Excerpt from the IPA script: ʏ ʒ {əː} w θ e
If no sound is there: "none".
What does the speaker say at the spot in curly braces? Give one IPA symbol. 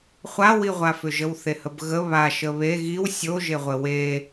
ə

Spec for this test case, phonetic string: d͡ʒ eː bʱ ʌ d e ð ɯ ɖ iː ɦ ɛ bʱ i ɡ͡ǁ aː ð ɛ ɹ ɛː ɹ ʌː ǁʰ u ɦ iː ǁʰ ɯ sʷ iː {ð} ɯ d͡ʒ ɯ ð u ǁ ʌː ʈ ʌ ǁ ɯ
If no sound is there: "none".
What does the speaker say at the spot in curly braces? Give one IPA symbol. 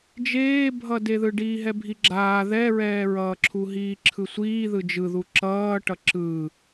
ð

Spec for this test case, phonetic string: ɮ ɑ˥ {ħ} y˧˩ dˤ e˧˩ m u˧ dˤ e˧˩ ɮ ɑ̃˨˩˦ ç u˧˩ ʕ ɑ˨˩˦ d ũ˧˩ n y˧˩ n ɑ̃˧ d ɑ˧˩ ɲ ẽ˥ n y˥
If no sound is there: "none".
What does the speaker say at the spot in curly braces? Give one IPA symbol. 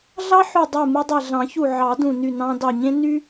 ħ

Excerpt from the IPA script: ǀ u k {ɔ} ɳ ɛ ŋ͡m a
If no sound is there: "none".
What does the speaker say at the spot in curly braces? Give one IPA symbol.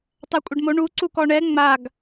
ɔ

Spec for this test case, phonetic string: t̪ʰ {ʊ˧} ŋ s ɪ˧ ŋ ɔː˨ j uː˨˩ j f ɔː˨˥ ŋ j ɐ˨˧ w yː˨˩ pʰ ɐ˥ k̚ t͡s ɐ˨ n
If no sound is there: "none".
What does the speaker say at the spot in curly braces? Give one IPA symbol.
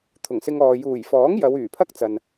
ʊ˨˩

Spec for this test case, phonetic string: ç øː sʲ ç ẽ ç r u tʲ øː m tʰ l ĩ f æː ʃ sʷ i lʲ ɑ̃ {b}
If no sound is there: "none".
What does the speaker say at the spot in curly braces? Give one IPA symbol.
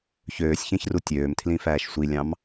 m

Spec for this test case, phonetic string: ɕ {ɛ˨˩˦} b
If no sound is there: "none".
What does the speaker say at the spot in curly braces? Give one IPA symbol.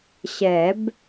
ɛ˨˩˦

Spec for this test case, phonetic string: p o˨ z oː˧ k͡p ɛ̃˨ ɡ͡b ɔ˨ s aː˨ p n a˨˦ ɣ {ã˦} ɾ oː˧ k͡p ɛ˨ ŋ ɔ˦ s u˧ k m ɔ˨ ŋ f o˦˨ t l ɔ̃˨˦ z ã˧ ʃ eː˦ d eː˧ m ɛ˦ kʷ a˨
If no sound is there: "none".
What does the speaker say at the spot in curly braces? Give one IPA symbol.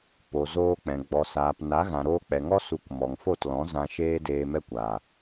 ã˨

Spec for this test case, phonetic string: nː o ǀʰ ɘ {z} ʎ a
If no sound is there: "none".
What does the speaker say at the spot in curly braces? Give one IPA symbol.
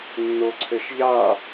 ʃ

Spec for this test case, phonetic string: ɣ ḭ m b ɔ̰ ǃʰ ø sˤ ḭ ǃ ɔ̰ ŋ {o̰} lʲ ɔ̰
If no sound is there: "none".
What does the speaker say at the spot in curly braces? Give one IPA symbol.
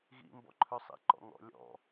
ɔ̰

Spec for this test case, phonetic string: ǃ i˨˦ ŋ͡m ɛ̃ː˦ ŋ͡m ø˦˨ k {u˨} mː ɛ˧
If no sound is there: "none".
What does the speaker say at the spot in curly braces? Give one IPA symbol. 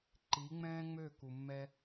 u˨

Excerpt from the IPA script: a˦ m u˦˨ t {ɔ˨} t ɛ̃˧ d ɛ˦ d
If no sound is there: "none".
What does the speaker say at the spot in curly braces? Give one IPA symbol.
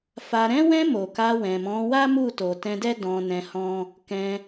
o˨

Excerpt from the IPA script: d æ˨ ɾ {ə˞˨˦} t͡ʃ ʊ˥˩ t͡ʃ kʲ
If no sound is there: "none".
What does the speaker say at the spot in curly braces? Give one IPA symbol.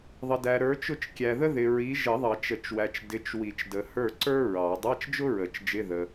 ə˞˨˦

